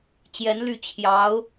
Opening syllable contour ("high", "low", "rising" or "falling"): rising